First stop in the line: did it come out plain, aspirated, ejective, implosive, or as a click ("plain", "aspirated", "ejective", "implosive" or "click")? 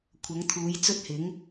aspirated